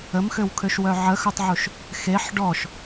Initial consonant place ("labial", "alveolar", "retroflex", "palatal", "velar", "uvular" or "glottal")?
labial